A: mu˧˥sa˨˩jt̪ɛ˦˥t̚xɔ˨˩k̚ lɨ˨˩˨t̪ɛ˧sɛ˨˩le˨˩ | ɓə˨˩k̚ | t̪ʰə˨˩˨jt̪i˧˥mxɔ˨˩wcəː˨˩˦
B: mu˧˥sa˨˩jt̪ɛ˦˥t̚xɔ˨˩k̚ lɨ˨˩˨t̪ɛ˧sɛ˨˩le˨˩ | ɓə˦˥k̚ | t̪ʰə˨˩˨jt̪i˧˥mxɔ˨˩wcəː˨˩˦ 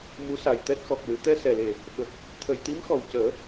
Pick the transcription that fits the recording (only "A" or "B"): A